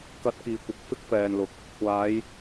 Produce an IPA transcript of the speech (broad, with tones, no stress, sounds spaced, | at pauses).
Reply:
k ɐ˧ t̚ k iː˨ kʷ ɪ˨˥ k̚ f ɪ˥ k̚ f ɛː˨ n l ʊ˨˥ k̚ | kʷ aː˨˧ j